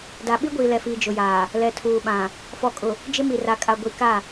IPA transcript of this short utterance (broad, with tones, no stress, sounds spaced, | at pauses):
d a˨ ɓ i˦ ɡʷ iː˨ l ɛ˨ f iː˨ d͡ʒ ʊ˨ j aː˨ | l ɛ˨ tʰ uː˨ ɓ ã˨ | f ɔ˨ kʼ ʊ˨ | d͡ʒ ɪ˦ m i˨ r a˨ kʼ a˨ ɡʷ i˨˦ k a˦˨